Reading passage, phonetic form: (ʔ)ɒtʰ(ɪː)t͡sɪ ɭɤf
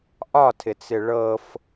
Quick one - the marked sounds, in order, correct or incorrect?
correct, incorrect

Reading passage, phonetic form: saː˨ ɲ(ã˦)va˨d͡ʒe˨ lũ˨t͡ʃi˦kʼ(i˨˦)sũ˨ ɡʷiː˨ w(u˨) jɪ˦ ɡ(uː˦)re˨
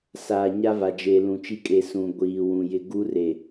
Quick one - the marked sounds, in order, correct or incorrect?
incorrect, incorrect, incorrect, incorrect

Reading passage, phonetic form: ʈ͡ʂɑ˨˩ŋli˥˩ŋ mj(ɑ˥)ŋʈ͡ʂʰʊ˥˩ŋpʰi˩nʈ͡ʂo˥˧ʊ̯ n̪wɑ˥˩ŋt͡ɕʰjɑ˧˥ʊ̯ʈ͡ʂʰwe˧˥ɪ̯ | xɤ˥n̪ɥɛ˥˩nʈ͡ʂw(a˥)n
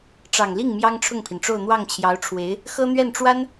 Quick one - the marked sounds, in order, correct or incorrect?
correct, correct

